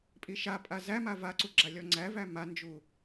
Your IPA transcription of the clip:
pʼ i ʃ a pʼ a z æ m a v a ǀ u ɡ͡ǁ a lʲ ɔ ŋ͡ǀ æ v æ m a n d͡ʒ u

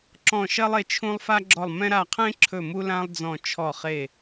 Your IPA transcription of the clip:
ǁ ɔ̃˦˨ ʃ ɜ˥ lˠ e˦˨ t͡ʃʰ ũ˥ lˠ f a˥ ɡ͡ǁ ɔ˦˨ lˠ m ɛ̃˥ ɾ a˦˨ qʰ ẽ˥ ǁʰ ɵ˦˨ m u˥ l ã˥ lˠ d͡z ɔ̃˦˨ t͡ʃʰ ɔ˦˨ χ e˦˨

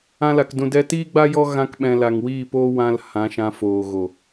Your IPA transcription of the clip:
ã˧ l a˨ k d ũ˨ d ɛ˧ t iː˦ ɡ͡b a˦ j ɔ˦ ɣ ã˧ k ɓ ɛ̃˨ l a˨ ŋ w iː˦˨ p oː˦ w ã˧ l h ã˨˦ ʃ ã˧ f oː˨ ɣ o˨

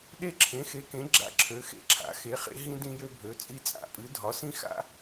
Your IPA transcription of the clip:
ɗ e˦ ǁʰ ẽ˩˥ x e˩˥ k ẽ˩˥ ɡ͡ǁ a̰˦ ǁʰ ø˩˥ x ḛ˦ ǁʰ a̰˩˥ x e˩˥ χ ḛ˦ ɦ ĩ˦ d ĩ˦ j ø˦ bʱ ø˩˥ t͡sʼ i˦ t͡sʼ a̰˩˥ pʼ ɨ˩˥ dʱ ɒ˩˥ s ĩ˦ x a̰˦

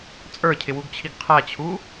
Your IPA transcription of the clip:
t͡sʼ ə˞ cʰ ɪ w u ɡ t͡ɕʰ i ɡ qʰ æ t͡ɕʰ u

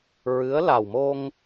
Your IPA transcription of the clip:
ɹ ɨ˧˥ ə̯ l a˨˩ w m o˧ ŋ

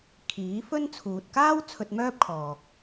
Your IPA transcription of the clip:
kʰ iː˨˥ f ɵ˥ n t͡sʰ uː˨ t̚ k aː˥ w t͡sʰ ɵ˧ t̚ m œː˥ p̚ kʰ ɔː˨ k̚

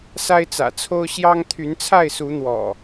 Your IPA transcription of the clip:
s a˦ ɪ̯ t͡s ä̰˨˩ t͡sʰ o˦ ʊ̯ ɕ j ɑ˦ ŋ t̪ʰ y˨˦ n t͡sʰ a˥˨ ɪ̯ s u˨˦ n̪ w ɔ̰˨˩

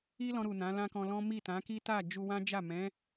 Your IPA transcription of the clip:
i˦ l ɔ̃˧ ɾ u˨ n ã˨˦ l ã˦ k ɔ̃˧ l ɔ̃˦ m i˦˨ t ã˨˦ k i˦ t a˦˨ d͡ʒ u˧ w ã˦ d͡ʒ a˦˨ m ɛ̃˨˦

